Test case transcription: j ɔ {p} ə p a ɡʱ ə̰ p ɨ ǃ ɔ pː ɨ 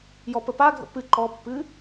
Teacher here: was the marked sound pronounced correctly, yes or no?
yes